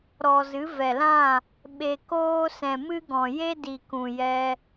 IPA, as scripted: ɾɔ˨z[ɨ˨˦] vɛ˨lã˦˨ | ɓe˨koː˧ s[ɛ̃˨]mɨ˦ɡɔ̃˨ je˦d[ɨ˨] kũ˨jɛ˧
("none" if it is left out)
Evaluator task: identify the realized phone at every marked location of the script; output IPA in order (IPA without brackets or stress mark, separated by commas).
ɨ˨˦, ɛ̃˨, i˨